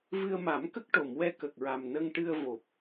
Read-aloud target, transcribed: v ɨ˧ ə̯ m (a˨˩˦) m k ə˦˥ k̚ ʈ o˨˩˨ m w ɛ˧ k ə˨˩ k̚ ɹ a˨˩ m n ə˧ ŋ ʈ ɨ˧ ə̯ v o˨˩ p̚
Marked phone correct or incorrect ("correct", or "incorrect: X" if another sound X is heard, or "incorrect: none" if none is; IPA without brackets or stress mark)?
correct